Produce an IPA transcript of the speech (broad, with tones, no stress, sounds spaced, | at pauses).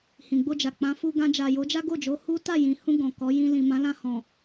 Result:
h ĩ˨ ɡ͡b o˧ d͡ʒ a˨ k͡p ã˨˦ f u˧ ɡ ã˧ d͡ʒ a˨ j o˨˦ d͡ʒ a˦ ɡ o˦˨ d͡ʒ o˨˦ h u˦ t a˦˨ j ĩ˨ h ũ˧ ɡ ɔ̃˨ k ɔ˨˦ j ĩ˧ l ĩ˨ m ã˨˦ l ã˧ h ɔ̃˨